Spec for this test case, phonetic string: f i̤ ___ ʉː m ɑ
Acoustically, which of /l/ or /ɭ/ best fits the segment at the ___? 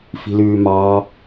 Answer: l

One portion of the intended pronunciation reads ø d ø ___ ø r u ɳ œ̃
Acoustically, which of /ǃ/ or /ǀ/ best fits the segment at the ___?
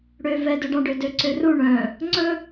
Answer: ǀ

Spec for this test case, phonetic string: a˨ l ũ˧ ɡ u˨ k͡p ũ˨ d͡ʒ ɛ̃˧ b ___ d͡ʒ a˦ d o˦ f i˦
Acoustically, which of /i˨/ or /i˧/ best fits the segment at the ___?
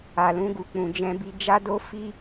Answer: i˧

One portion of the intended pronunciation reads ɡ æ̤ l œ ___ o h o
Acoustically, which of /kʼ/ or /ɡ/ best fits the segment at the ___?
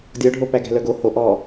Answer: ɡ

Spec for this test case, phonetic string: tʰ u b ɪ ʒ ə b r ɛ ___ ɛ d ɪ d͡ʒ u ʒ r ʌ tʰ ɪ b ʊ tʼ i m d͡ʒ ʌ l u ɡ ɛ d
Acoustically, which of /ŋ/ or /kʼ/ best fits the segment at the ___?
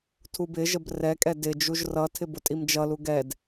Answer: kʼ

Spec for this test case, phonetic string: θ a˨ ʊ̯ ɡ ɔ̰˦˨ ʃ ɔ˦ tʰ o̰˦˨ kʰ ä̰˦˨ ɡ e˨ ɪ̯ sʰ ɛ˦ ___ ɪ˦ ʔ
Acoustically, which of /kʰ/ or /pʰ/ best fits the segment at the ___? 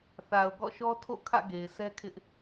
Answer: kʰ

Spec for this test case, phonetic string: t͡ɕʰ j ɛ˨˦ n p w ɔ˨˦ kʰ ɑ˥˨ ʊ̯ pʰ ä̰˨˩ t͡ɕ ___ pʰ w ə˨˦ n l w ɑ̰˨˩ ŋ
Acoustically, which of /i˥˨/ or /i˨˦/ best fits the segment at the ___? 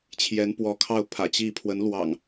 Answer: i˥˨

